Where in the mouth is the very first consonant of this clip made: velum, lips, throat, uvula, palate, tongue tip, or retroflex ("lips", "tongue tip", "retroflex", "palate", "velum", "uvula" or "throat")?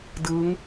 tongue tip